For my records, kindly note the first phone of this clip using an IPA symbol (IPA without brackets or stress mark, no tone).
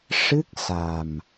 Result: ʂ